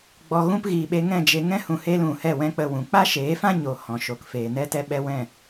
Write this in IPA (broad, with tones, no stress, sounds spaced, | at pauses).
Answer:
ɡ͡b ɔ˧ ɣ ũ˦ p ɣ iː˨ ɓ e˧ ŋ ɛ̃˦˨ d͡ʒ e˧ ŋ ɛ̃˦ h ũ˧ h eː˦ l ũ˨ h ɛ˦˨ w ɛ̃˦ k͡p ə˧ w ũ˨ k͡p a˦ ʃ eː˨˦ f ã˦ ɲ o˨ h ɔ̃˨ ʃ o˨ k f eː˨ n ɛ˦ t ɛ˦ ɓ ɛ˦ w ɛ̃˦˨